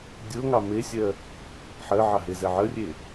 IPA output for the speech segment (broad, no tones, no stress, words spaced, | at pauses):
dʲoŋɑ mesʲɜ | ħɜʕɑɦezɛ ʕərʲe